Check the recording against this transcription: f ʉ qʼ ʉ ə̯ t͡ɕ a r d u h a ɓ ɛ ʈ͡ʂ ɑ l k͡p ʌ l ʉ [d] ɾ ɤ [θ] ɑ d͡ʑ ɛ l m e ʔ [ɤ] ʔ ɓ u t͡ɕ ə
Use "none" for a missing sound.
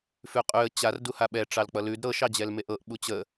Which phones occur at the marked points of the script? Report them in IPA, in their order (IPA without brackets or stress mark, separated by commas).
d, ʃ, ɤ